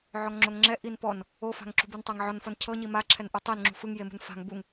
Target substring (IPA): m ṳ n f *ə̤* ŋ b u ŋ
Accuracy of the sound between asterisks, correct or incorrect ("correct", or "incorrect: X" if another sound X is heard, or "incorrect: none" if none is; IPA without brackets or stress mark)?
incorrect: a̤